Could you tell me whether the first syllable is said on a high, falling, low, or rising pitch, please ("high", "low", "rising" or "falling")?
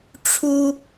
high